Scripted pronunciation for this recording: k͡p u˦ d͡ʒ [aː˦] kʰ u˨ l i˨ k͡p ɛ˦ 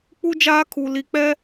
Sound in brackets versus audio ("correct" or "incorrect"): correct